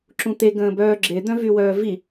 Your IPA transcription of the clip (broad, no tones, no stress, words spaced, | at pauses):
ǁũt̪e ɡə̃ːbœːɡ͡ǁe d̪œ̃vywœːvi